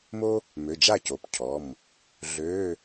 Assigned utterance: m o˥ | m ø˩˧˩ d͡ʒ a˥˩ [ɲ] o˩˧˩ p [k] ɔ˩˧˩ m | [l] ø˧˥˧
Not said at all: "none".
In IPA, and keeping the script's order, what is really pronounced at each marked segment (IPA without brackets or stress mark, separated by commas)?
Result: c, cʰ, ɮ